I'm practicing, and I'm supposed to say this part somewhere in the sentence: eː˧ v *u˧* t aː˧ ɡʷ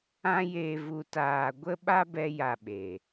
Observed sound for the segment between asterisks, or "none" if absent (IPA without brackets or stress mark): u˧